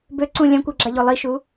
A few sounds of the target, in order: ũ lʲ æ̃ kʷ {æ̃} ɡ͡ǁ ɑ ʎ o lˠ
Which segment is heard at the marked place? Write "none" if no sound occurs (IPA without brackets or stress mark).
æ